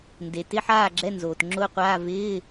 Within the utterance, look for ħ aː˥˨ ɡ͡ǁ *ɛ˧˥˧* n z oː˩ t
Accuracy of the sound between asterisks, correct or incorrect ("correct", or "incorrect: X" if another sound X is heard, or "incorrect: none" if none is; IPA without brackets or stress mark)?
correct